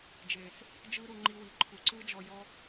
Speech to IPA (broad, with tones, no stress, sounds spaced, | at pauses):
d͡ʒ eː˨ s | d͡ʒ ɯː˦ ɾ u˧ ŋ͡ǃ i˧ w i˨ ǃʰ u˨ ǀ ɯː˦ d͡ʒ ɔ˧ j ɔ˦